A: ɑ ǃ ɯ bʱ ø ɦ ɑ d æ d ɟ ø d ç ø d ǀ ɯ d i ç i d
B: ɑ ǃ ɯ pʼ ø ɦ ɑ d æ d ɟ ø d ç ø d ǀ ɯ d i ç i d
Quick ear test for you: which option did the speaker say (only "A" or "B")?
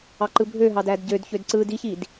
A